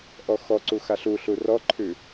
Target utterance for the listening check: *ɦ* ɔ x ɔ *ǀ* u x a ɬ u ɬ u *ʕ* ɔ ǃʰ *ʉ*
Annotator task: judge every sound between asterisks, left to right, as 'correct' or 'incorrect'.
incorrect: ʔ, correct, incorrect: r, correct

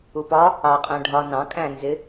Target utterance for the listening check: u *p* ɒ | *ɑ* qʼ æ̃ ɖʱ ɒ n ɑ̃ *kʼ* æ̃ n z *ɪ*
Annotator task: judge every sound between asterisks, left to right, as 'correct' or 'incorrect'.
correct, correct, correct, correct

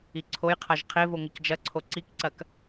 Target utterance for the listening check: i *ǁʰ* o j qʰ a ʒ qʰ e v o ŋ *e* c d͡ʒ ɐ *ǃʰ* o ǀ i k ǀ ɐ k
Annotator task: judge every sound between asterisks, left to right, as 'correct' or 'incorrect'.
incorrect: ǀʰ, incorrect: ɘ, incorrect: ǀʰ

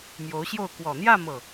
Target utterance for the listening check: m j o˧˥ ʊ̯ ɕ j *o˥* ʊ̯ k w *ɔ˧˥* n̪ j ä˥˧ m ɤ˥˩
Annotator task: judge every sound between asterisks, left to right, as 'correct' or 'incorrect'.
incorrect: o˥˩, incorrect: ɔ˨˩

